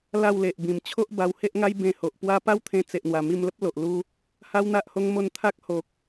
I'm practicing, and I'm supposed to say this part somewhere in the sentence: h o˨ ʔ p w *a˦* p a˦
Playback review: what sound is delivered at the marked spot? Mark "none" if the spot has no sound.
a˦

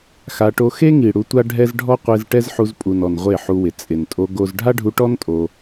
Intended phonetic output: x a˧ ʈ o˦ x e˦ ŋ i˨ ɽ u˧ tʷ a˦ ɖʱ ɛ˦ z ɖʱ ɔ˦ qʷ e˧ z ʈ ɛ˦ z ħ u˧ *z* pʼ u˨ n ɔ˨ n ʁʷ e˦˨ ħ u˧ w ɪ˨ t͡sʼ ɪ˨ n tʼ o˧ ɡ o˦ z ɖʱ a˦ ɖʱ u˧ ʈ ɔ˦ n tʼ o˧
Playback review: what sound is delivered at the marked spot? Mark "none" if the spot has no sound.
z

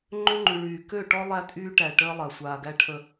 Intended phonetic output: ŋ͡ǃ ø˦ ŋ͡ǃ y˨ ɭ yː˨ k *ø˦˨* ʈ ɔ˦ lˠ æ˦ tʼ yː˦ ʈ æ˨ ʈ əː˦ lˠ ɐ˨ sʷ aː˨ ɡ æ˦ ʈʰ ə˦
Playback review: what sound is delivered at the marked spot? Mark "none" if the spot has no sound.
ø˦˨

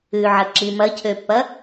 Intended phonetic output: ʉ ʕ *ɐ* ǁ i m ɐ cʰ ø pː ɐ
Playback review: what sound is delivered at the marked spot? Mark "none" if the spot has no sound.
ɐ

